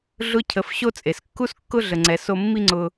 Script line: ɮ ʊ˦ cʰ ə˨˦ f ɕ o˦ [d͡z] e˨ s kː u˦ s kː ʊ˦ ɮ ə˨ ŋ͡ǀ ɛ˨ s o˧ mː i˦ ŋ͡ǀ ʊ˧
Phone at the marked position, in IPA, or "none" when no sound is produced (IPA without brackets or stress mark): t͡sʼ